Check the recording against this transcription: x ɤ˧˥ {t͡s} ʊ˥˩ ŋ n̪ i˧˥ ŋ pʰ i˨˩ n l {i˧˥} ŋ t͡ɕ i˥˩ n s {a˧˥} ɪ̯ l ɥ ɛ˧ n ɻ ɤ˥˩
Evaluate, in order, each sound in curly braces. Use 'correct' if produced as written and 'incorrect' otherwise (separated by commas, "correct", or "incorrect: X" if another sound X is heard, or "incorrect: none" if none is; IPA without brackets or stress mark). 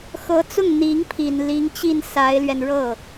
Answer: correct, correct, correct